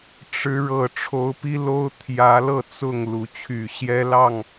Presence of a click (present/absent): absent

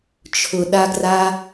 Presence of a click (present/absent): absent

